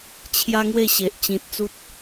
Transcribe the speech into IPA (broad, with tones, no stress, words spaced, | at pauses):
t͡ɕʰja˦ŋwe˥˧ ɕe˨ʔ t͡ɕĩ˨t̚t͡su˦t̚